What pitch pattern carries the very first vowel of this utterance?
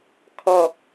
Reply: low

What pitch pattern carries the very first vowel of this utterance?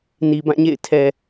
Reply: low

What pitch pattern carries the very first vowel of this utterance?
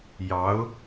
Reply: rising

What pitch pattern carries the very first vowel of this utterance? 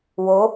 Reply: rising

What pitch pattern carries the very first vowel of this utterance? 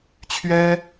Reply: high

